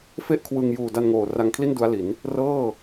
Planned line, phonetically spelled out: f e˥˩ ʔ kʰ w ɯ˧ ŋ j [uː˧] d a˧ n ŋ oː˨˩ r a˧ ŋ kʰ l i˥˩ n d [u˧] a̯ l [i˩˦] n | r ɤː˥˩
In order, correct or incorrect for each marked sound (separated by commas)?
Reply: incorrect, incorrect, correct